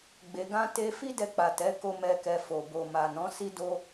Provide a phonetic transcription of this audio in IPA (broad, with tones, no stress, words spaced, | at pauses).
ɡ͡be˧ɡã˦ te˦ fi˦dɛ˧ k͡pa˨tɛ˨˦ko˧mɛ˧ kɛ˧fo˨ bo˨ma˨nɔ̃˨˦ si˦do˦